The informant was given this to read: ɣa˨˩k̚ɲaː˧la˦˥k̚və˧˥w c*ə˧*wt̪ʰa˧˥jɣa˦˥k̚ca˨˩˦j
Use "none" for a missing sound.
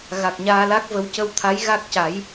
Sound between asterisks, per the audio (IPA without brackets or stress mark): ə˧